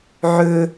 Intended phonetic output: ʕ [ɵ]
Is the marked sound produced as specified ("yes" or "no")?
yes